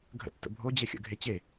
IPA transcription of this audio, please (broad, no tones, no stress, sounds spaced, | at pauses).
ɡʱ ə̰ tː ə̰ bʱ o d͡ʑ e xʲ ə̰ ɡʱ e t͡ɕ e